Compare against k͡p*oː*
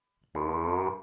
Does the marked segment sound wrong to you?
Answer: yes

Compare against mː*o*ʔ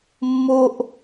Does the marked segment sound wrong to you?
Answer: no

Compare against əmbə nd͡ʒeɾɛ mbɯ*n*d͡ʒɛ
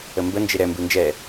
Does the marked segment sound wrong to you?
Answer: no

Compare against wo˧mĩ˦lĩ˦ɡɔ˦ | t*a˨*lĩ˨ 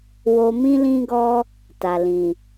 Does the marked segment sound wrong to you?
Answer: no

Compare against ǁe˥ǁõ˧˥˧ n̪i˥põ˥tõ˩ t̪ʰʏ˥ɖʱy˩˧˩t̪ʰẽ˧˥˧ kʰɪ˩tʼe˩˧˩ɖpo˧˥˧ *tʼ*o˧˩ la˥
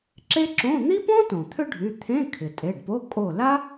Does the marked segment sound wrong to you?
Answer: yes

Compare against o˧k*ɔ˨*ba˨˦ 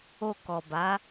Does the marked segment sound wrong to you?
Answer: no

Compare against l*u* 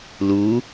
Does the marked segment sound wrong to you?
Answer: no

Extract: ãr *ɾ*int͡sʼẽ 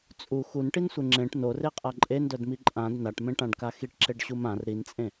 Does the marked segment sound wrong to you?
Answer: no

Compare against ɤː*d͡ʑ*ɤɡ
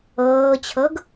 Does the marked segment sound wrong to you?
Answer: yes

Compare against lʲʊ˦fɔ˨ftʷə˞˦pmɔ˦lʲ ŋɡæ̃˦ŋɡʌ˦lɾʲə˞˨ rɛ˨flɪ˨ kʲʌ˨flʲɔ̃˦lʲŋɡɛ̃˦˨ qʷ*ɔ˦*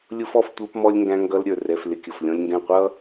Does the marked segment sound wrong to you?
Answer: yes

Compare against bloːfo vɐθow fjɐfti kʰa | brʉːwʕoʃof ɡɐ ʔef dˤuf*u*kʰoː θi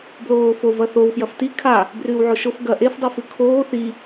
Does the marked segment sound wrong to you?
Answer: yes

